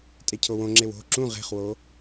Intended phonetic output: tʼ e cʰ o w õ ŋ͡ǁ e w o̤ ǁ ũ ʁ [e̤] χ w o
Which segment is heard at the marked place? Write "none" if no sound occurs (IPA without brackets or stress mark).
e̤